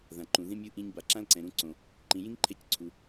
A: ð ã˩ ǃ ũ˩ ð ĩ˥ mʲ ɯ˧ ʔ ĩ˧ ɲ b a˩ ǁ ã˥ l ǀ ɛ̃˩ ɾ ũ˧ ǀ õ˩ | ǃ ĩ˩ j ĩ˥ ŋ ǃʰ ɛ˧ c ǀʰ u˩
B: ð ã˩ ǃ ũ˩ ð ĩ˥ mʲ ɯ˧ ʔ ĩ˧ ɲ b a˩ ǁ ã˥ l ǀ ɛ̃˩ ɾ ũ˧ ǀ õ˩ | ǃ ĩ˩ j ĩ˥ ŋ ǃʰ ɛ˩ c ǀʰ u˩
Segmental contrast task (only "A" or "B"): A